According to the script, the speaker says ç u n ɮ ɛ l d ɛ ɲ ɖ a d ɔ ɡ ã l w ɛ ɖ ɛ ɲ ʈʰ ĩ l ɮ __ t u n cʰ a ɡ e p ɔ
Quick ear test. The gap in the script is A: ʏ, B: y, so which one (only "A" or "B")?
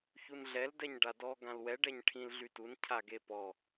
B